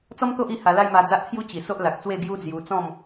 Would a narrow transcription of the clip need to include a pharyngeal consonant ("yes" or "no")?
no